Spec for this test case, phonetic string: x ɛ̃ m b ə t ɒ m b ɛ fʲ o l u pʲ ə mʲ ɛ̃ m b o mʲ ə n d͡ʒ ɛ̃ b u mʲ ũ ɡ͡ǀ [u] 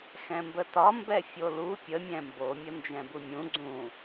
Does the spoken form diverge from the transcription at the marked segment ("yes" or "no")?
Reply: yes